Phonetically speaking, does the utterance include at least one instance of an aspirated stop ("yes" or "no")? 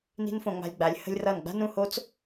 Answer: no